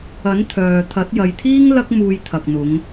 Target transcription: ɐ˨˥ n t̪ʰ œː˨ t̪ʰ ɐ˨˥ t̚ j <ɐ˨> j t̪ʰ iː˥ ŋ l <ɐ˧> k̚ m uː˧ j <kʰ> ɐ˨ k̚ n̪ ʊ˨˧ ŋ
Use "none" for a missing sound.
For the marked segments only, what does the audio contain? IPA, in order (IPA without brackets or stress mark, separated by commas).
ɐ˨, ɐ˥, t̪ʰ